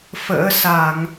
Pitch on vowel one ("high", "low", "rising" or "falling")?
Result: rising